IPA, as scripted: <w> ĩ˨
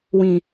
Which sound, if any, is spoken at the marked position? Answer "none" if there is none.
w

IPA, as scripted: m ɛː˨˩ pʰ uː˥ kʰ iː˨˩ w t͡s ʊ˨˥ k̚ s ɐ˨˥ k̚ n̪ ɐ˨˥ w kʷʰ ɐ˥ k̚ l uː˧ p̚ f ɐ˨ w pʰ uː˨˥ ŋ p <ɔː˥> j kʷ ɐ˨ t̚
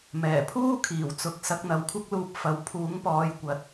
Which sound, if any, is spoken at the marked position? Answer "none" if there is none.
ɔː˨˧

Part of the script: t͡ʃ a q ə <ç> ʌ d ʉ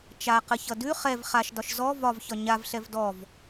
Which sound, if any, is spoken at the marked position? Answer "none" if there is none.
ç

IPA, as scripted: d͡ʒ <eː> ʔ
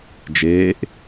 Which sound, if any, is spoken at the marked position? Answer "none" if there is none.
eː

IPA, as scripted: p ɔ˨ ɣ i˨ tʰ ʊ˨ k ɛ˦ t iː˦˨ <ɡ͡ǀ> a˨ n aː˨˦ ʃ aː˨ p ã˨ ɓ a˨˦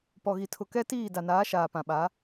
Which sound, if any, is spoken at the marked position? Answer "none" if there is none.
d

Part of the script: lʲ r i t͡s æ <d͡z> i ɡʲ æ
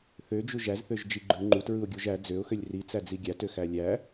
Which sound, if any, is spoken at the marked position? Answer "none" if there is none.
d͡z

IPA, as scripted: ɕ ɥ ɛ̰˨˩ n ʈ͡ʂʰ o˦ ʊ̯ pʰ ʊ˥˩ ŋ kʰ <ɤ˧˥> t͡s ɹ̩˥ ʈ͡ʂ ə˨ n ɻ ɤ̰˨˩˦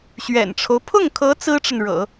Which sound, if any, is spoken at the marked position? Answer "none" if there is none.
ɤ˧˥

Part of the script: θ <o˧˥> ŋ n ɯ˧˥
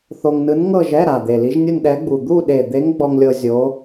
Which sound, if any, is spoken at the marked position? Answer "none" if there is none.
o˧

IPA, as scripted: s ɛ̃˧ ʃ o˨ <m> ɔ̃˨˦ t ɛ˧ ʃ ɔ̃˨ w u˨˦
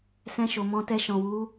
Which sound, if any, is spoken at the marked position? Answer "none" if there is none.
m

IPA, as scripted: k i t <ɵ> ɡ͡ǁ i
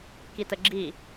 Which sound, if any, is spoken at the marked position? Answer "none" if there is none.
ə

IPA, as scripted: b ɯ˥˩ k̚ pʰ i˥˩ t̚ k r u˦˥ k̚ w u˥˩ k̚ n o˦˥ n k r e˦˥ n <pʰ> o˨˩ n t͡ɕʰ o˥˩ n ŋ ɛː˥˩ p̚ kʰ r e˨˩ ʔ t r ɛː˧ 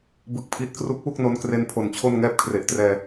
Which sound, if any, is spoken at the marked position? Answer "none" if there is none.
pʰ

